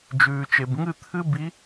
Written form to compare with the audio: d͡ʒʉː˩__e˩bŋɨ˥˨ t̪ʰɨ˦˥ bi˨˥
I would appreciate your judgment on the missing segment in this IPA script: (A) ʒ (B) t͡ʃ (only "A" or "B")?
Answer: B